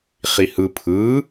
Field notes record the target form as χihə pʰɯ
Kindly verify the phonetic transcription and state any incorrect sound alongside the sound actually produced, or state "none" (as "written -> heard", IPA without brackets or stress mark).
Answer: ə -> ɯ